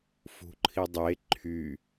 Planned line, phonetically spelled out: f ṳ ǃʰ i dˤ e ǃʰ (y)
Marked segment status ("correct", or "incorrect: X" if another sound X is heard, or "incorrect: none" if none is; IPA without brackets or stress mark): correct